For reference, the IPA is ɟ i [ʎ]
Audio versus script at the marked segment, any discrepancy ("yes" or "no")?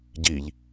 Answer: no